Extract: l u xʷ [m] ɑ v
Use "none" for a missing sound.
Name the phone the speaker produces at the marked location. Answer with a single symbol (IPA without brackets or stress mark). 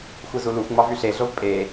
ŋ͡m